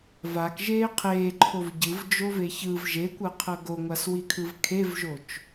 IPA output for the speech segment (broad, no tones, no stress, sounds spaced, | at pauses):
v a k ʒ eː qʰ eː ǃʰ o v ɟ ɯ v d͡ʒ o v e ç ɯ v ʒ e kʷ ɤ qʰ ɤ ɡ o ŋʷ a s w i kʰ ɯ v kʰ e v ʒ o t͡ʃ